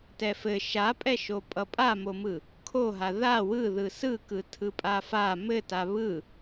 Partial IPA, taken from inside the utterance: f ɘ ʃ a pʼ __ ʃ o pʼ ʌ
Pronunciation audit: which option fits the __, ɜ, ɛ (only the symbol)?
ɛ